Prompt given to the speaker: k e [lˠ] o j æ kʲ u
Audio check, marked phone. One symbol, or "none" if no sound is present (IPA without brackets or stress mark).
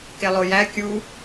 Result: lˠ